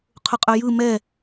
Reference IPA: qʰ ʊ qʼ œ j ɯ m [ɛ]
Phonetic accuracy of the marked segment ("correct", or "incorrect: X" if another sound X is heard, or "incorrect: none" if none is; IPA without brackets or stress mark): correct